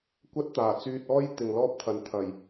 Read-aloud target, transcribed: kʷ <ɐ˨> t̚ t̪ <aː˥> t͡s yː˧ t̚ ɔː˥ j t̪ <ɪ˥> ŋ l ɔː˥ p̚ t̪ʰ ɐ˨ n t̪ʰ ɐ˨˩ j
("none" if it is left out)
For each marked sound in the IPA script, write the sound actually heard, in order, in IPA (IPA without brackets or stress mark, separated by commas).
ɐ˥, aː˨˩, ɪ˨